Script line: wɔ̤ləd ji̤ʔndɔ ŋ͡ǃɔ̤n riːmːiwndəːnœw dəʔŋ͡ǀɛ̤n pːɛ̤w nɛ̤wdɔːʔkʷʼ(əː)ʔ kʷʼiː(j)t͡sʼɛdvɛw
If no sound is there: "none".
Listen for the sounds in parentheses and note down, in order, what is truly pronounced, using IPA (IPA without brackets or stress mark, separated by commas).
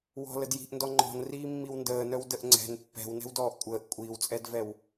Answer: əː, w